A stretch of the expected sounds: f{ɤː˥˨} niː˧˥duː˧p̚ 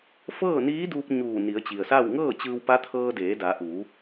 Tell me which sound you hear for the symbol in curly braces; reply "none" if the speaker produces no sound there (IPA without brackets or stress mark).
ɤː˥˨